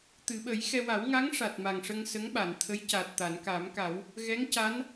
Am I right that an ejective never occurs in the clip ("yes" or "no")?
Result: yes